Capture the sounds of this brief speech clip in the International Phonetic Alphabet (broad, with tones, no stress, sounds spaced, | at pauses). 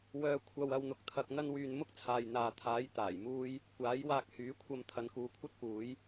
w œː˧ kʷʰ ɐ˧ w ɐ˧ w n̪ ʊ˧ k̚ t̪ʰ ɐ˧ k̚ n̪ ɐ˥ n w yː˧ n m ʊ˥ k̚ t͡sʰ aː˨ j n̪ aː˨ t̪ʰ aː˨˥ j t̪ aː˨˩ j m uː˥ j | kʷ aː˨˥ j w aː˧ k̚ h yː˨˥ kʷʰ ɐ˧ m t̪ʰ ɐ˨˧ n k uː˨ kʷʰ ɐ˥ t̚ p uː˨˥ j